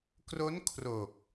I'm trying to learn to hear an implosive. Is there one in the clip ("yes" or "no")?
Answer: no